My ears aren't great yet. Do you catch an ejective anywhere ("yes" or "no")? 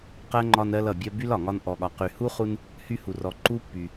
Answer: no